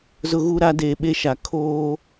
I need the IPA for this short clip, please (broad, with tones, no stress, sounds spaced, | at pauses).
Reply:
z ʊ˦ ɣ u˦ ɾ a˦ d eː˨ ɓ e˦ ʃ a˨ kʰ oː˦